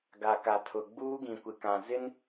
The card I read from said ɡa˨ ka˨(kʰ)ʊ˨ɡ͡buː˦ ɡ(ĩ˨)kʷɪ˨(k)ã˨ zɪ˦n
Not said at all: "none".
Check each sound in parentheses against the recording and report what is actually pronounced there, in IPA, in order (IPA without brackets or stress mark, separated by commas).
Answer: tʰ, ĩ˨, k